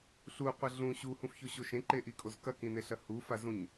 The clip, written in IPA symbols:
ɬuqʷɐ ɮũ ɕuhũfçoɕo ʃẽǃeʔikʼoz kɐkĩneɬɐ hufazũɲ

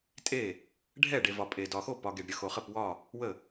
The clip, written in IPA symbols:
tʼe˥˩ | ɖʱɛ˥˩ɖe˨vɒ˨ pʼe˨ dɒ˨xo˥˩ pɒ˨ ɡe˨ɖɾʲə˨ xo˨χə˥˩pwɒ˥˩ | wə˥˩

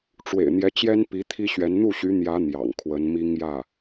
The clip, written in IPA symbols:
ʈ͡ʂwḛ˨˩ɪ̯n̪jɛ˧˥t͡ɕjɛ˥n pi˧˥t̪ʰi˥ɕɥɛ˧˥n n̪u˥˩ɕy˧˥n̪jä˧˥ n̪jɑ̰˨˩ŋkʰwə˧˥n mi˥ŋjä˥˩

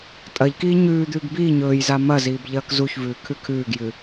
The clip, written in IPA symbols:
tʼɐʎkiː ɲʉːd̪ʉːɡ biː ɲɵːjza mɐziːb ʎɐːkzuçvʉː kʰʉkʰʉːɡjɨ

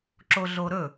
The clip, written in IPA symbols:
ǁoɮoɾɵ

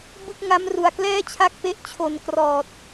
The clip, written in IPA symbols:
bɯ˥˩k̚ŋa˦˥m ru˨˩a̯ klɛː˥˩t͡ɕʰa˦˥k̚pe˦˥ʔ t͡ɕʰo˨˩n krɔː˨˩t̚

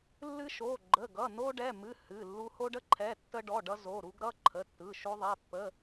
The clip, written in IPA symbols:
lːɨ˧ʃo˩˧˩ ɡ͡ǃə˩˧˩ɡʌ˩˧˩no˧ ɖɛ˩˧˩mɨ˩˧˩ hɨ˩˧˩lːu˧ ho˧ɖə˧ ǃʰɛ˩˧˩tːə˧ɖɔ˩˧˩ ɖʌ˧zo˩˧˩ɾu˧ɡ ɾʌ˩˧˩ǃʰə˩˧˩tːɯ˩˧˩ʃo˧ ðˤɛ˩˧˩ pːə˩˧˩

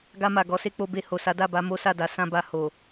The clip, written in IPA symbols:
ɡa˧ma˨ɡɔ˨˦ se˧k͡po˧be˧ ho˨sa˨˦da˦˨ba˧ mo˦sa˦˨da˨˦ sã˧ba˧ ho˨

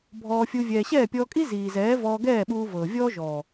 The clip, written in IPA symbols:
bʱɔː˧fʲu˧ vʲɛː˨ɕɛː˦˨pʲɔː˧kʼi˦ ziː˨zɛː˨˦ vɔː˧ɡɛː˦˨ɓuː˧ vɤː˨vʲɔː˦ ʒɔː˨

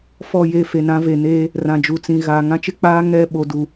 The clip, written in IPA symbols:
fɔ˦˨je˦˨ fe˨nã˨˦ve˨ neː˦ | rã˨d͡ʒu˨t͡sĩ˨ ɣaː˨ŋã˦t͡ʃɪ˦k͡paː˦ ŋɛ˦˨ ɓo˨du˨

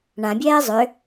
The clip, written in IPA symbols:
ɳãbʲɛː zˤʏ

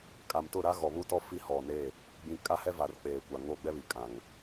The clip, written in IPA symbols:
kʼa˨mtʊ˦˨ɾa˦ ɣɔ˨βu˦tɔ˦ fi˦hɔ˨neː˦˨ | ɡ͡bĩ˨ kʼa˦hɛ˦va˨r k͡peː˨kʷa˨ ŋo˦˨ɡ͡bɛ˦βi˨ kʼã˨ŋ

